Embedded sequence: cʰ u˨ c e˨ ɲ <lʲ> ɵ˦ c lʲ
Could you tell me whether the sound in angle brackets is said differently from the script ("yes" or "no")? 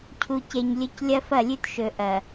no